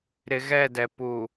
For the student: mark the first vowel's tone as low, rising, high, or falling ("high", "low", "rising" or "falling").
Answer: low